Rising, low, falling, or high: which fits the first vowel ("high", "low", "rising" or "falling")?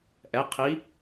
rising